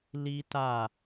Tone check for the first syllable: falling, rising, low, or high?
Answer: high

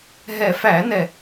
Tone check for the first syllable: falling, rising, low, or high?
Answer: low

